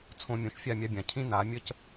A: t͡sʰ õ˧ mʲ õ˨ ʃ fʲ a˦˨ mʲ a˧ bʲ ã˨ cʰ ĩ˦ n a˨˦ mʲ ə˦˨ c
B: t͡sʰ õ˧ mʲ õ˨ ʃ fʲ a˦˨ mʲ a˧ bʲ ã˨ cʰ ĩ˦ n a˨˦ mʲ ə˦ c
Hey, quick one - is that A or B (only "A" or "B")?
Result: B